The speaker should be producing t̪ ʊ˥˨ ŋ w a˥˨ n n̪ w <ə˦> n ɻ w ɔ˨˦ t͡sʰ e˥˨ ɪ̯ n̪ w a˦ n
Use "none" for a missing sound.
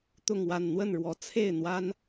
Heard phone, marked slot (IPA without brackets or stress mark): ə˥˨